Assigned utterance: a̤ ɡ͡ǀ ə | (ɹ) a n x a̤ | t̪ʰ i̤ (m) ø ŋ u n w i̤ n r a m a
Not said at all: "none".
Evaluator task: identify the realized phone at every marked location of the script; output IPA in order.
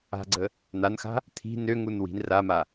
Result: n̪, n

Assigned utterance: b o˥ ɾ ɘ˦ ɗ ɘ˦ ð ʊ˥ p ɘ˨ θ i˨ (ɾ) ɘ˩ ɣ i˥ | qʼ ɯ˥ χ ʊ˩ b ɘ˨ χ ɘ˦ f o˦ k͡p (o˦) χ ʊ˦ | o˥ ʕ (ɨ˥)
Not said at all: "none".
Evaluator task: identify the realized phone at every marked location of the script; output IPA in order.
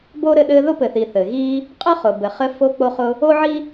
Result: θ, o˦, i˥

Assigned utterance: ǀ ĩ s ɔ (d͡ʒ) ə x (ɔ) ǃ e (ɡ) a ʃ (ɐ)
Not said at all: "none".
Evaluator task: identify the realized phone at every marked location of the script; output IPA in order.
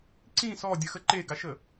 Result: dʲ, ə, ɡ, ə

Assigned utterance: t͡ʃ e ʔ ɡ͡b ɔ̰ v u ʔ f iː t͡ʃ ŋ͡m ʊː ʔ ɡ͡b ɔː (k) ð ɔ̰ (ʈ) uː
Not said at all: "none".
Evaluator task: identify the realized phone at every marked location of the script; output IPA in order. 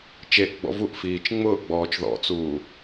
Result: t͡ʃ, t͡s

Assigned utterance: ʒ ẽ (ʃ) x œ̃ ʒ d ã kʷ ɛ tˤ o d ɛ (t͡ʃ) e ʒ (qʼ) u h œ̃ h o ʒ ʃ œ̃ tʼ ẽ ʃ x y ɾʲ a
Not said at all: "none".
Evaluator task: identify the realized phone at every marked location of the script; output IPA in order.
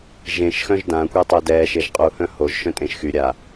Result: ʃ, ʃ, qʼ

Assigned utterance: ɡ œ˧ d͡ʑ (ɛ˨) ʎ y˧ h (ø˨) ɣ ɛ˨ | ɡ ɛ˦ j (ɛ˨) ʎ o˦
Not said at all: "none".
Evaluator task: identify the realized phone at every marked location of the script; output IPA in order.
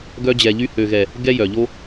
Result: ɛ˨, ø˨, œ˨

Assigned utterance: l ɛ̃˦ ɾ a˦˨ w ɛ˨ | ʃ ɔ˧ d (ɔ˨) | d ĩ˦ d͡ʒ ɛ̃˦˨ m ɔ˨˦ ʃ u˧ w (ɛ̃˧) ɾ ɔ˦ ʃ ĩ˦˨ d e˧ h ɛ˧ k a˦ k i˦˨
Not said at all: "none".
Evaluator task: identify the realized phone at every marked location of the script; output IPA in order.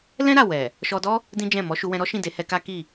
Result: ɔ˦, ɛ̃˧

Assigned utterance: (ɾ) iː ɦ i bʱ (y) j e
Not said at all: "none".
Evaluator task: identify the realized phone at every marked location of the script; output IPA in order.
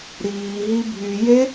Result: ɾ, y

